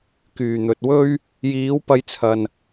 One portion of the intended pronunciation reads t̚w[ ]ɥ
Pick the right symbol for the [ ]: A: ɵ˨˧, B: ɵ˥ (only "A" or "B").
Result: B